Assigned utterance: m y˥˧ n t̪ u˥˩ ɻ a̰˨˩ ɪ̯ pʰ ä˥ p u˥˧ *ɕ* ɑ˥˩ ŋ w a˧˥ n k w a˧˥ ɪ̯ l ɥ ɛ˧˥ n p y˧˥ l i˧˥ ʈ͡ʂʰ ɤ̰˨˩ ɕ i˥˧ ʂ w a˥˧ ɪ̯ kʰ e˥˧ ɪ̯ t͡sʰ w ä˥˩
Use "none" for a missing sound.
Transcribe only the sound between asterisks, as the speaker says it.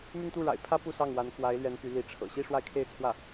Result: s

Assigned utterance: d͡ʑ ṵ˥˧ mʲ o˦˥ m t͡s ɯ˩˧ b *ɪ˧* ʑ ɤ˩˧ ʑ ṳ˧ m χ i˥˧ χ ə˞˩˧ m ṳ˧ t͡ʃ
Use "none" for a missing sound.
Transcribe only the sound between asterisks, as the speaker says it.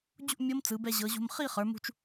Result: ɛ˧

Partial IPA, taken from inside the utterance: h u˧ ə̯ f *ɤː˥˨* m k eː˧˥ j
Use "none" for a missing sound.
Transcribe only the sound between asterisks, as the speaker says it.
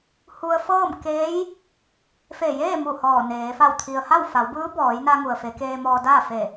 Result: ɤː˥˨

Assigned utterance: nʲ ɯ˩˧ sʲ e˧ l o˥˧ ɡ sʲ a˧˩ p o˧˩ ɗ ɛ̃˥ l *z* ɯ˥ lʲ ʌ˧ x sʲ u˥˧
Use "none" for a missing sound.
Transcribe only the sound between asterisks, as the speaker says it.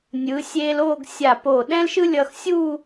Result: ʃ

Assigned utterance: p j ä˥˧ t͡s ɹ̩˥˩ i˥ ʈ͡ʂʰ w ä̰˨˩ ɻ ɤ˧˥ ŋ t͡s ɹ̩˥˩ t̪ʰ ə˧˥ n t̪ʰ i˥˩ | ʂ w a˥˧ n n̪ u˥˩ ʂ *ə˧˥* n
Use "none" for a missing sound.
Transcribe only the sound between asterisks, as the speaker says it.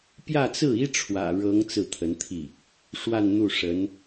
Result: ə˧˥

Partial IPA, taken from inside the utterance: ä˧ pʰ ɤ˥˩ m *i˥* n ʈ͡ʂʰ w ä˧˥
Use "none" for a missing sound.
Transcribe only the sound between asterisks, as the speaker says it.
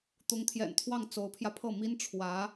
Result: i˥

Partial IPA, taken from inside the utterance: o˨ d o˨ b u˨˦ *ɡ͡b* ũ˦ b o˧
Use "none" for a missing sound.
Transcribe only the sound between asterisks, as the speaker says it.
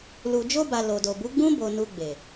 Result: ɡ͡b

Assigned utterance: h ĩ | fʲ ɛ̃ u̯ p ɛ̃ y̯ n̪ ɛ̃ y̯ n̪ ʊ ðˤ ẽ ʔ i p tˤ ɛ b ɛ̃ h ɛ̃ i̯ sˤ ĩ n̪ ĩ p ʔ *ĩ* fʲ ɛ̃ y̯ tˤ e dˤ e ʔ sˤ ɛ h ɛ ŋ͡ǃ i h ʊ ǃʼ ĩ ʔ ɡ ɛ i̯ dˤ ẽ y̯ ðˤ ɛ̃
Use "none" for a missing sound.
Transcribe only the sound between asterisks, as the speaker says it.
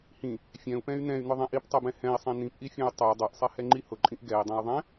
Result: i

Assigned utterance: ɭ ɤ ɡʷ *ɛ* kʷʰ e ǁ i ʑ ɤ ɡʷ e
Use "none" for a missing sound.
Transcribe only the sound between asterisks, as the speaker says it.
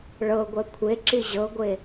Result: ɛ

